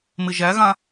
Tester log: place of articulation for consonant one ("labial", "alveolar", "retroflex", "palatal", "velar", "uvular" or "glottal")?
labial